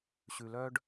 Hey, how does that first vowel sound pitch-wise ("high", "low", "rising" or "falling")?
low